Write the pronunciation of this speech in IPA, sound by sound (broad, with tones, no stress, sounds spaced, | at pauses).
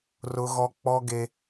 r ʊ˦ ɣ ɔ˦ k͡p ɔ˦ ɡ e˦